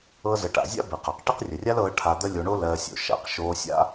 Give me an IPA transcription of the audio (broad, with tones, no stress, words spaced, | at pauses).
ɤ˧zə˨ʈa̰˨ zʲa̰˦be˨qa˨q ʈɪ˦qrʲə˨rʲa˦lɤː˧ ʈʰa˧d̪ə˦lʲo˧ɳo˦ lɜː˧sʲo̰˨ ʃa̰˨q ʃoː˧sʲa̰˦